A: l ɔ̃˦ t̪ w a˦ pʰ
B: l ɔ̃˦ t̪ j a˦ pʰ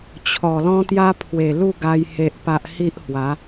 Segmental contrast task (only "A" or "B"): B